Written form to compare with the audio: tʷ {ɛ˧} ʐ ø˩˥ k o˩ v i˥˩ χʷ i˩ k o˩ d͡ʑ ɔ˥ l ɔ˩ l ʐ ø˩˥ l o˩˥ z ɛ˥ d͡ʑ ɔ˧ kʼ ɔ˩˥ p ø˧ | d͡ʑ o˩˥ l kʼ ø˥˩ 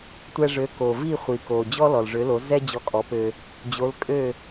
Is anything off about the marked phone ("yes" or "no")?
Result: no